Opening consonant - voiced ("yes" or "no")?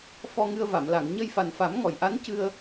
no